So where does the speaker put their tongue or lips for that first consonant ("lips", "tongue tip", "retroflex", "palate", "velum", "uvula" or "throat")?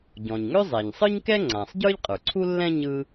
palate